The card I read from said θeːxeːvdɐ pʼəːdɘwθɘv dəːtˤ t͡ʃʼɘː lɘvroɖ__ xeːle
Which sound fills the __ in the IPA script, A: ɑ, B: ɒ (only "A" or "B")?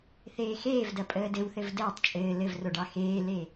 A